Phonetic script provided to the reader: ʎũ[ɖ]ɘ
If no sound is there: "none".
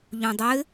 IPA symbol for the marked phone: dˤ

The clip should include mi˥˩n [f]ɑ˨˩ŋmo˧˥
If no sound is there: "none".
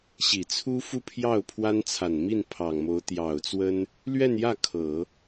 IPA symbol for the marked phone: pʰ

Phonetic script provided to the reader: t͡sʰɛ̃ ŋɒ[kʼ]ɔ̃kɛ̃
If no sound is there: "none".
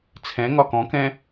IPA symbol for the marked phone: k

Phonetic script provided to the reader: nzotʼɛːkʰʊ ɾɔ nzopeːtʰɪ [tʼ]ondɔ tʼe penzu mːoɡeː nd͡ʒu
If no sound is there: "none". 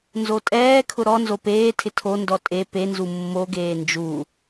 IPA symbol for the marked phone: tʰ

